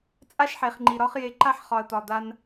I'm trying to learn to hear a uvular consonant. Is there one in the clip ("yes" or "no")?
yes